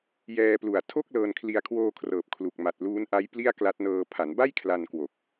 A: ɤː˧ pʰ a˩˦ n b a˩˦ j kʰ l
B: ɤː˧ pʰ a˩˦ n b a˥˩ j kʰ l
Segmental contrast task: B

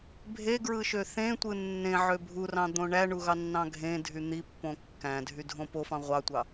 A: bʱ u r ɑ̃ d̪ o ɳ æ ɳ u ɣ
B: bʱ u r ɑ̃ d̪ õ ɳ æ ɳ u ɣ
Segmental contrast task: B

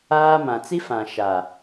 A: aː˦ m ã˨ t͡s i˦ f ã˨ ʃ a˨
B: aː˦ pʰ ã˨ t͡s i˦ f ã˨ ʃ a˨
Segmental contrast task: A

